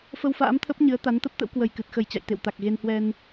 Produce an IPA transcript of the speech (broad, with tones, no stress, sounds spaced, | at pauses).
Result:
f ə˧ w f a̰ː˧˥ m t̪ʰ ə˦˥ p̚ ɲ ɨ˨˦ ə̯ t̪ a˨˦ n t̪ ə˦˥ p̚ t̪ ə̰˧˥ w k w ə˨˩ j k ɨ˨˩ t̚ x ə˨˩ j t͡ɕ a̰˧˨ j t̪ ḛ˧˨ w t̪ a˨˩ k̚ ɣ e˧ n h w ɛ˧ n